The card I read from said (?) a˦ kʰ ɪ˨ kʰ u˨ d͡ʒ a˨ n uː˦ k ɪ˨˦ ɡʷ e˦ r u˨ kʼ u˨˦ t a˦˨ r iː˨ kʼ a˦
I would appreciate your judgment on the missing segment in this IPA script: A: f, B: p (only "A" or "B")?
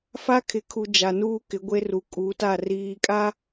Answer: A